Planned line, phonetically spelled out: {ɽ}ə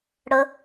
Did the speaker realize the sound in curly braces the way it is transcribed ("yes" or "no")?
yes